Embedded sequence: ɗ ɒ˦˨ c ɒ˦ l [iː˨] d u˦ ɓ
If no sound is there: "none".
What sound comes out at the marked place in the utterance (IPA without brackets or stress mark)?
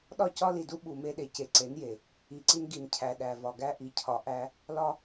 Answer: i˨